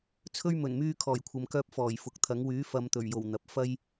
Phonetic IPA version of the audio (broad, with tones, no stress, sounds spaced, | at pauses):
t͡sʰ ɵ˥ ɥ m ɵ˨˩ n m yː˧ kʰ ɔː˨˩ j kʷʰ ɐ˨ m k œː˧ p̚ f ɔː˨˩ j f ʊ˨ k̚ t̪ʰ ɐ˨˥ ŋ w yː˨˥ f ɐ˨˧ m t̪ ɵ˨˩ ɥ j o˨˩ w n̪ ɐ˨ p̚ f ɐ˥ j